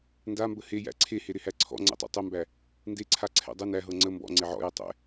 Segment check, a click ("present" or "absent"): present